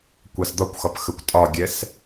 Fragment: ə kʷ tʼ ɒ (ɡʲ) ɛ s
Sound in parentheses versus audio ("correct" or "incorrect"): correct